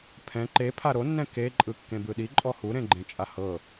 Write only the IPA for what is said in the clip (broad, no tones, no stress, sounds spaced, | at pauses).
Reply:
pʰ ɛ̃ ǃ e pʰ a ɾ o nː ɛ̃ k e ǃʼ ɯ kː ẽ b ɯ ɗ i ǃʼ ɔ h u ɾ ẽ ɡ͡ǃ ẽ t͡ʃʼ a h ɤ